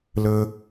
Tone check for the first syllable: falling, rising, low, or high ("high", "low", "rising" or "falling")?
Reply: high